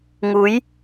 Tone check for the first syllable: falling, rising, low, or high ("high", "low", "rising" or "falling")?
rising